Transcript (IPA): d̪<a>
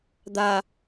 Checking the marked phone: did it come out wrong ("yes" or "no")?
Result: no